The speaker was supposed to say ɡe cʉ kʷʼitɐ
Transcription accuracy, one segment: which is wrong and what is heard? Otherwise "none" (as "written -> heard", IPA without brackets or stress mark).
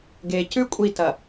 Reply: none